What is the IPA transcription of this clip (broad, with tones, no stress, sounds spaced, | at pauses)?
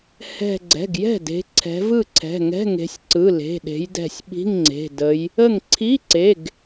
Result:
h ɛ̤˧˩ ɡ͡ǀ ɛ̤˩˧˩ ɡ j ɛ̤˥˩ d e̤˨˦ ǀʰ ɛ̤˨˦ v ɯ˥˩ ǀʰ ɛ̤˩˧˩ ŋ ɛ̤˧˥˧ ŋ e̤˨˦ sʲ ǀ ɯ˩˧˩ l e̤˩˧˩ ɗ e̤˨˦ j d ɛ̤˧˩ sʲ ɓ i̤˧˥˧ ŋ ŋ͡ǀ e̤˩˧˩ d ə˨˦ j | ə˥˩ ŋ ǀʰ i˧˥˧ ǀ e˩˧˩ ɡ